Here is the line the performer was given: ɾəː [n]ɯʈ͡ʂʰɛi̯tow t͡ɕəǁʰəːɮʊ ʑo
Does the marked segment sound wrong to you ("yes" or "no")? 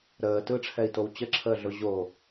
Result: yes